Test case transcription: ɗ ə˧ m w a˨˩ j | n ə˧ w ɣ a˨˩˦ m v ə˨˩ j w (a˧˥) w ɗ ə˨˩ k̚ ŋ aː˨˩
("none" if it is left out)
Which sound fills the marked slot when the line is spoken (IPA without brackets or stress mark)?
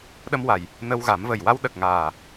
a˧